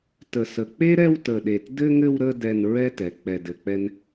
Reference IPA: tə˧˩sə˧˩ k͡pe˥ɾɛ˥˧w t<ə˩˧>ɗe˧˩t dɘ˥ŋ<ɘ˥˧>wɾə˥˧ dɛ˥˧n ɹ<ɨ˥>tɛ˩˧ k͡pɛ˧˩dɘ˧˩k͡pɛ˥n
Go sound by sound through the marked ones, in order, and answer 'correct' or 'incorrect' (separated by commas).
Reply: incorrect, correct, incorrect